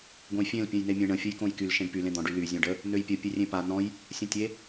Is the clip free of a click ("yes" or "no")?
yes